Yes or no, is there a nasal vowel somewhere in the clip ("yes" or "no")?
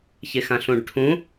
yes